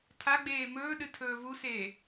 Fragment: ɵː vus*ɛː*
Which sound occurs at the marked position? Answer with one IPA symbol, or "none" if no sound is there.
eː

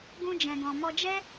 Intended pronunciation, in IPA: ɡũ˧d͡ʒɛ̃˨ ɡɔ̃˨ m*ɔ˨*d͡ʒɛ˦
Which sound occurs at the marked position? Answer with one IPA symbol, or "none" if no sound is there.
ɔ˧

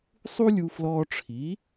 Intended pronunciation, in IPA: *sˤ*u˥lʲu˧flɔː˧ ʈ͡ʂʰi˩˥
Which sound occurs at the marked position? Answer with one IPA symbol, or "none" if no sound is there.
sˤ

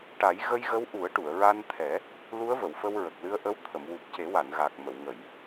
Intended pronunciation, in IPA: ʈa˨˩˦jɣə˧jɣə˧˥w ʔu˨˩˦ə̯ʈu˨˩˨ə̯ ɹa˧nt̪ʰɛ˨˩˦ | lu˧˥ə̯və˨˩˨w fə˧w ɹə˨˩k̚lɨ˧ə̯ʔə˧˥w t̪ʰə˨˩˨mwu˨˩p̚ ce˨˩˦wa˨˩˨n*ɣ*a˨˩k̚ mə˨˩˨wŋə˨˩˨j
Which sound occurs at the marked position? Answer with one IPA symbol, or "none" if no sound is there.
ɣ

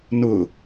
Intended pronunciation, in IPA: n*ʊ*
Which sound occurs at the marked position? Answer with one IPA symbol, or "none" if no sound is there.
ʊ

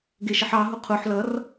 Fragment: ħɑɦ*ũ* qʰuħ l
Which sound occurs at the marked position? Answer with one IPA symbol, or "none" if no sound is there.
u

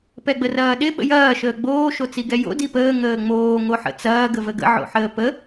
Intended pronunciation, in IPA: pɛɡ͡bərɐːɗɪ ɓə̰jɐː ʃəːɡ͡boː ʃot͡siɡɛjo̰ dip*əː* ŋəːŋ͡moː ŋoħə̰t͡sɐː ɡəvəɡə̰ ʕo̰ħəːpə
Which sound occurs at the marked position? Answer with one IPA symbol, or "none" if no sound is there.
əː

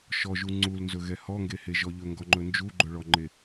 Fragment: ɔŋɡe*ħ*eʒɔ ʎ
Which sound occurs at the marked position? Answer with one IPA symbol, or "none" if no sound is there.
h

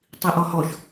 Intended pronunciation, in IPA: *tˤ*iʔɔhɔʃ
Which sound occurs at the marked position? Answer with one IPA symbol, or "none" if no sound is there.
tˤ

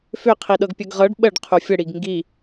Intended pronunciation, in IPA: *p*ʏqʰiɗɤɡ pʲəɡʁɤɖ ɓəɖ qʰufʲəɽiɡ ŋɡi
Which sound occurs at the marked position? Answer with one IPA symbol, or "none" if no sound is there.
f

